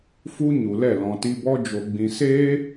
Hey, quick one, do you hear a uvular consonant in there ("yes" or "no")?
no